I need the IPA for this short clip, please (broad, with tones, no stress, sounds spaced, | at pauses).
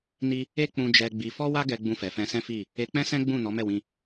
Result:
n i˦ | e˦ k͡p ũ˧ d͡ʒ ɛ˧ ɡ͡b i˧ f ɔ˦ w a˦ ɡ ɛ˧ ɡ͡b ũ˧ f ɛ˨ f ɛ̃˧ s ɛ̃˦ f i˦˨ | e˧ k͡p ɛ̃˦ s ɛ̃˦ ɡ͡b ũ˦˨ n ɔ˨˦ m ɛ˦˨ w ĩ˧